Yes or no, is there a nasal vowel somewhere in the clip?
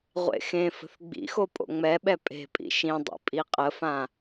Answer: yes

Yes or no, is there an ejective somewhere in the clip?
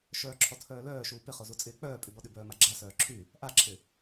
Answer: yes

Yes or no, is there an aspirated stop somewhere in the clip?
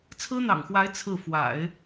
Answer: yes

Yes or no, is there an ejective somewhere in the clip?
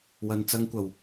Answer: no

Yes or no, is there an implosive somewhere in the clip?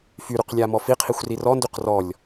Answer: no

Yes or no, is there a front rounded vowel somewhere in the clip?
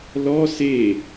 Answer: no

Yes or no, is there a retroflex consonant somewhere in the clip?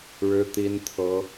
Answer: yes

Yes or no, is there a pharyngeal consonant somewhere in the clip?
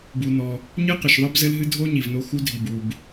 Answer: no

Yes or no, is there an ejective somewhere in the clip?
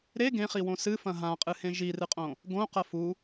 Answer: yes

